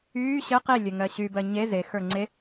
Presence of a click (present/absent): present